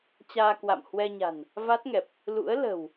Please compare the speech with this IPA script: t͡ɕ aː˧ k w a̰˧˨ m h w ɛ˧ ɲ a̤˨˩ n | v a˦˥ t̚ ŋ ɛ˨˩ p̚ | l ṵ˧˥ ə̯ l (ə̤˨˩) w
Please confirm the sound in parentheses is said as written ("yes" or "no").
yes